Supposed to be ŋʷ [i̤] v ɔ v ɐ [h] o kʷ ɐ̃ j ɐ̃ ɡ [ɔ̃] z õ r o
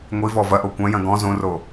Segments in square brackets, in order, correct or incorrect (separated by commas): incorrect, incorrect, correct